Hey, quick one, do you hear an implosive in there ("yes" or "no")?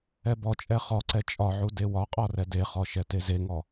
no